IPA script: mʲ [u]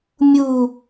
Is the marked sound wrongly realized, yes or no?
no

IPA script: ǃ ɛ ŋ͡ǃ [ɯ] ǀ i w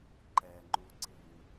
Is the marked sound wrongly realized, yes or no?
yes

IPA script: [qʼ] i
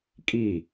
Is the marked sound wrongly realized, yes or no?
yes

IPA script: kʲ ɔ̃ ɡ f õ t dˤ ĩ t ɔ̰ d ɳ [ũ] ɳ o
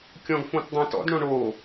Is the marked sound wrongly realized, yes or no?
yes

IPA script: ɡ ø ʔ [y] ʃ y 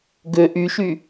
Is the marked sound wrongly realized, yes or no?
no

